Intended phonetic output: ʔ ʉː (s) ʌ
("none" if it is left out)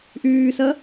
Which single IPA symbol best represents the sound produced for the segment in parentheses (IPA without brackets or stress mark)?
s